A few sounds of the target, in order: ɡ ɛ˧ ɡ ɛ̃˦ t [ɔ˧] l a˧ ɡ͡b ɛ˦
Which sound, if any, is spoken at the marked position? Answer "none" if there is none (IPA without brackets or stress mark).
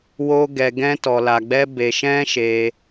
ɔ˧